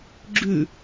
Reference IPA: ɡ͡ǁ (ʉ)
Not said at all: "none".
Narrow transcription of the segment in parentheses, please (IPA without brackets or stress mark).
ʉ